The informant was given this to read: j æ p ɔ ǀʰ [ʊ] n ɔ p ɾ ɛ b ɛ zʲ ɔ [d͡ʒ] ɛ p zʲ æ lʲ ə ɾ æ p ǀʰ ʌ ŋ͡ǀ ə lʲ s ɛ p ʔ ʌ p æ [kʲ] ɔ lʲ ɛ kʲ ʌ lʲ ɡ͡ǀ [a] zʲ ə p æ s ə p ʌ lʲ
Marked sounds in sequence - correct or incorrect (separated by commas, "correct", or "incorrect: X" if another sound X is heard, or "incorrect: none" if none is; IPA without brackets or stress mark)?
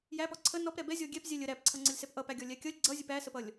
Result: incorrect: ə, incorrect: ɡʲ, incorrect: ɡʲ, incorrect: ʌ